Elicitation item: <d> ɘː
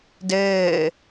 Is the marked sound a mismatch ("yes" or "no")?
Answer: no